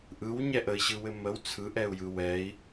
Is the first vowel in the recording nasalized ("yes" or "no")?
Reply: no